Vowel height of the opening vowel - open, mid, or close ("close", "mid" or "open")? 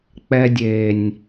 mid